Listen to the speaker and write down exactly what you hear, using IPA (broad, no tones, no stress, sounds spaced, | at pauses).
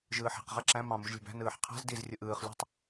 ʒ ɯː ħ e̤ q ʁ æ ǁ æ̃ m ɑ̃ m u ʒ lʲ e̤ b æ̤ n ɯː ħ qʰ æ̤ z d i z rʲ ɯ ʔ ɯː χ lʲ ṳ tˤ